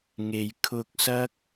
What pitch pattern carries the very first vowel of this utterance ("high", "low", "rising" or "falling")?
low